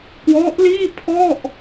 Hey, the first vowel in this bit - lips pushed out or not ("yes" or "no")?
yes